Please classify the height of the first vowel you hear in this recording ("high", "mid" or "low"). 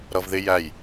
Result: mid